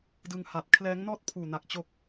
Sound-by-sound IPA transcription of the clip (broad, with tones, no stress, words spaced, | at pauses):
dɯ˧ŋha˨˩t̚ kʰlɛː˦˥ŋnɔː˥˩t̚ pʰuː˨˩na˨˩k̚ t͡ɕo˦˥k̚